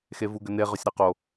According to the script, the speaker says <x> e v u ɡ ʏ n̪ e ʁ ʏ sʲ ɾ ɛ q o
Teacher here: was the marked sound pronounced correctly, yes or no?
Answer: yes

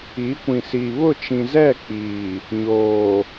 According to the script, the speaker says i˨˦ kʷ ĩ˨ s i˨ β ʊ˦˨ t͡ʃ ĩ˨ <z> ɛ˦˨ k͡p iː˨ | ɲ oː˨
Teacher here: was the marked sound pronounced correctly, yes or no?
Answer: yes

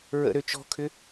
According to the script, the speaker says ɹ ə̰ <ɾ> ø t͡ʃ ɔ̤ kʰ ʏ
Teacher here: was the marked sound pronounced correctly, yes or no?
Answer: yes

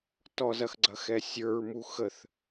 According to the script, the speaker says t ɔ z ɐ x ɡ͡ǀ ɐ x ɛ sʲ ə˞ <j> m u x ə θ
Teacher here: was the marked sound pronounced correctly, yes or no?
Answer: no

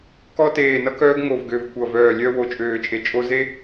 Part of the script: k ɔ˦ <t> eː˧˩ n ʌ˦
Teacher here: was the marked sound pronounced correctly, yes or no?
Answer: yes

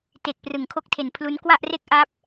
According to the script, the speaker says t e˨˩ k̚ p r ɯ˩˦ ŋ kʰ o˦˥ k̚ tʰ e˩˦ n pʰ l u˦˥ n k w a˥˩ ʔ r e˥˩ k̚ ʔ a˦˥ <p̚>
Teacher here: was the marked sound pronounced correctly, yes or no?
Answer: yes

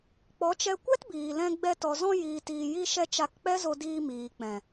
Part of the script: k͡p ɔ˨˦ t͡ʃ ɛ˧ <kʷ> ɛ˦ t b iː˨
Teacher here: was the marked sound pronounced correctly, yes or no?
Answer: yes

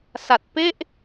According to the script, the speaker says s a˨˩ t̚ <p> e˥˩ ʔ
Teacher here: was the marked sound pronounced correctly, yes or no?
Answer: yes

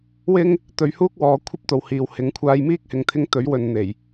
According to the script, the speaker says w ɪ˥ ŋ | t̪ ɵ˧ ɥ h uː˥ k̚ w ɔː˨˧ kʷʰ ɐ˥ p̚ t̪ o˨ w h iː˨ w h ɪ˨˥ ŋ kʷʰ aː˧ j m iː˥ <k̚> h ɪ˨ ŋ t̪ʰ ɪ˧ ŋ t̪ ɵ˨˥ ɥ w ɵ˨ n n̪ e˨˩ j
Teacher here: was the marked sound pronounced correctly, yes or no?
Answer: yes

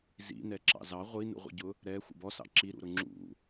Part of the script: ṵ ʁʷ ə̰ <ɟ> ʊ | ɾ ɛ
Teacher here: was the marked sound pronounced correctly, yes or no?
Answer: yes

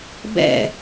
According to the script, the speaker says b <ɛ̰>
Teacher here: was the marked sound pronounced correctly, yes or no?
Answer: yes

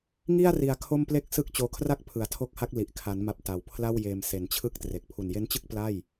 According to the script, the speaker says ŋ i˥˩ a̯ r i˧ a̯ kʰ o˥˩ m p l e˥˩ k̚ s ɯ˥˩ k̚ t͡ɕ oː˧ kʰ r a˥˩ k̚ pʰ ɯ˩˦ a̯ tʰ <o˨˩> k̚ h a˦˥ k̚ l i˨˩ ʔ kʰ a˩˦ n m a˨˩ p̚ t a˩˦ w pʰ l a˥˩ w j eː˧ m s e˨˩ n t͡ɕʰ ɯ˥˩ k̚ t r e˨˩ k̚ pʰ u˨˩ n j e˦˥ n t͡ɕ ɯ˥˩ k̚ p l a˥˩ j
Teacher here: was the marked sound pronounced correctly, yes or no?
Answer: no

